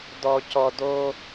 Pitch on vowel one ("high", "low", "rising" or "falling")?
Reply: low